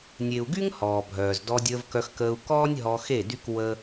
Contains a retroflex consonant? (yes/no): no